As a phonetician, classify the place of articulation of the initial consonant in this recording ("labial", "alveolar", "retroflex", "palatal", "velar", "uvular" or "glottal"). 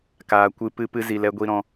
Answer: velar